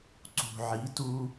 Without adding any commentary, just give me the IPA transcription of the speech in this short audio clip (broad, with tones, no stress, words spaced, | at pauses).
ǀṳ˨ʕi˨˦tu˦